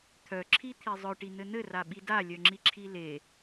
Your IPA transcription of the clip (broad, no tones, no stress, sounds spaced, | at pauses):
t̪ʰ œ ǁʰ i t̪ʰ i zˤ œ ʈ i n̪ ɘ n̪ ɘ r a ɓ i d a lʲ œ ŋ͡ǁ i ǁʰ i l e